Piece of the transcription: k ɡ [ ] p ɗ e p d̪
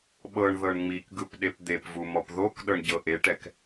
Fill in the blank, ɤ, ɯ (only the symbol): ɯ